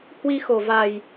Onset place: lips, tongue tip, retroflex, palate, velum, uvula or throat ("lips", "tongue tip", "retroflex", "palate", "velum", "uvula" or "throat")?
throat